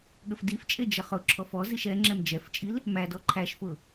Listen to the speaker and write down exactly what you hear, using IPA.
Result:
ɠ ə f d i f t͡ʃʼ e d͡ʒ ə χ ʊ ǁʰ ɔ f ɔ z i ʃ ɛ ŋ͡ǁ ɛ m d͡ʒ ɛ f t͡ʃʼ i l | m æ d ɔ ǃʰ æ ʃ f ʊ

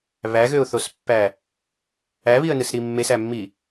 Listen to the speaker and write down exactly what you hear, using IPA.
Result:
β æ ɣ ø ʊ̯ θ o s pː æ | æ β i ə̯ n ɯ s ɾ i mː e s æ mː i

